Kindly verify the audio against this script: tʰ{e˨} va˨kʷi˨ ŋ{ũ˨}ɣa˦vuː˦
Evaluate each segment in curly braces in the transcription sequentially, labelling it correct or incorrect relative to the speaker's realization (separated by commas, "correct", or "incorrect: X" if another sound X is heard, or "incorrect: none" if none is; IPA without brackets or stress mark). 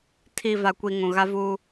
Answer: incorrect: i˨, correct